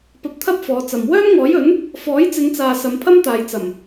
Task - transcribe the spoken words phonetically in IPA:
p ɐ˧ p̚ t̪ʰ ɐ˥ p̚ f ɔː˨˧ t͡s ɐ˨ m w œː˥ m ŋ ɔː˨˥ j ɵ˨˥ n | f ɔː˨˥ j t͡s ɪ˨˧ ŋ t͡s aː˨ s ɐ˨˧ m pʰ ɐ˥ m t̪ aː˨ j t͡s ɐ˨˩ m

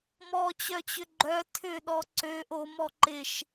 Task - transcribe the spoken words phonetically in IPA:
m ɔ t͡ɕ œ t͡ɕ ʏ ɡ͡ǃ œ tʰ ʏ ɗ ɔ ǀ ø ʔ o m ɔ ǃ ɪ ʃ

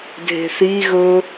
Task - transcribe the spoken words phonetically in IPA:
dʱ e̤ θ i ɣ ɵ

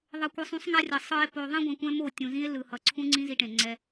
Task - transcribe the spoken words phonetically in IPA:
ðˤ ʌ˧ kʷ ɯ˧ sˤ ũ˦ sˤ ŋ a˦ rʲ ʌ˨ sˤ ɯ˧ e̯ p o˧ ðˤ ĩ˦ ɡʷ ã˧ kʷ ɛ̃˦ m o˦˨ tʲ ũ˨ z ĩ˦ e̯ l ɯ˨ h ʌ˨ ǀʰ ũ˦ ŋ͡ǀ ĩ˦ z i˧ ʈ ẽ˨ ŋ͡ǀ ɛ˧

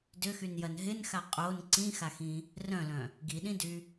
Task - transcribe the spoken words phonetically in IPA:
d ʏ x y n j ɐ n ɦ ɪ n x a qʼ o n ǀ ĩ x a x ĩ | r œ̃ l œ̃ | ɡ i ɗ ĩ d y

